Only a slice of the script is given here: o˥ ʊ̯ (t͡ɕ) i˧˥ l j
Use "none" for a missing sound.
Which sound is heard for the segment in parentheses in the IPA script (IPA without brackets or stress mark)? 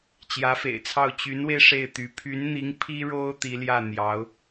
t̪